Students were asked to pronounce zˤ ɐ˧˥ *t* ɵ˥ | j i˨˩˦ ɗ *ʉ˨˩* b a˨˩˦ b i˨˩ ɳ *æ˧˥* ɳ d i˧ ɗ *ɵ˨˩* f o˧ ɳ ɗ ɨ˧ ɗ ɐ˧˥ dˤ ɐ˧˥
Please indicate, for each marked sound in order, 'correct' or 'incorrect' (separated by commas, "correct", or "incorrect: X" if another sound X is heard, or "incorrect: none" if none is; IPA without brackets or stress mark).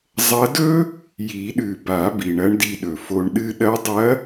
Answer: incorrect: d, correct, incorrect: ɐ˧˥, correct